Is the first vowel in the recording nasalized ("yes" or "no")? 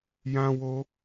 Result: yes